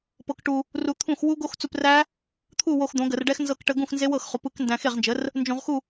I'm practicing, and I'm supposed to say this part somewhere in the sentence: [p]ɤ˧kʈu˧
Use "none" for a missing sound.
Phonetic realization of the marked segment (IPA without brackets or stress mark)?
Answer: p